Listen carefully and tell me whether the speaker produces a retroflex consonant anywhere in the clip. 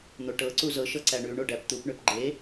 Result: yes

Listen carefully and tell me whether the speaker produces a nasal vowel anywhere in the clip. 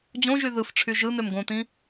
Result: yes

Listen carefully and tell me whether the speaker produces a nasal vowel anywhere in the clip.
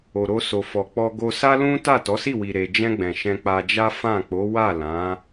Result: yes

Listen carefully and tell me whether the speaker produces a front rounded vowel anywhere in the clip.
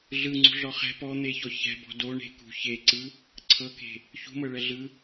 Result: no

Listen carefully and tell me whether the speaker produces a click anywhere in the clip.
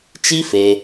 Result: no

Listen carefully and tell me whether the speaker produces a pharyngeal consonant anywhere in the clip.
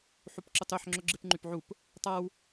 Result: yes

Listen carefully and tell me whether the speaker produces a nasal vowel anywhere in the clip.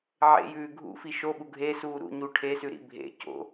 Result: no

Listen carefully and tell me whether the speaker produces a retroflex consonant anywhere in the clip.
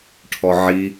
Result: yes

